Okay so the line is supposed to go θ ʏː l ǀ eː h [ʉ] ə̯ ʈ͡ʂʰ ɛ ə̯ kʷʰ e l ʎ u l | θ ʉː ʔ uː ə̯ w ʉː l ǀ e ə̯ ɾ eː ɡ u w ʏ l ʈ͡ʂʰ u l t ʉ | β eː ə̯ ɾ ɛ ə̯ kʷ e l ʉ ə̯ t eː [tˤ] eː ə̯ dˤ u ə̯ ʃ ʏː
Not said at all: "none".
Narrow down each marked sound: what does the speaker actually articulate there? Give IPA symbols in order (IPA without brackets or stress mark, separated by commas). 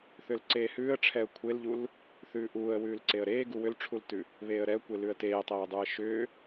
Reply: ʉː, tˤ